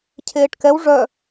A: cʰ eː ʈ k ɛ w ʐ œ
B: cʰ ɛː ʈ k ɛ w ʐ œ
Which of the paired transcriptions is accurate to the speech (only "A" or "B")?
A